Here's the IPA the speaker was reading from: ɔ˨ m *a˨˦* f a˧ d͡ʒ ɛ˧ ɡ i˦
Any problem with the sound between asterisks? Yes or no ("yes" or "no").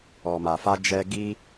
yes